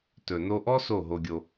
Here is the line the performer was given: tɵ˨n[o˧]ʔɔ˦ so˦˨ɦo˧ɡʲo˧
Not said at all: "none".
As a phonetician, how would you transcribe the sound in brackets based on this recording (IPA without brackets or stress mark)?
o˧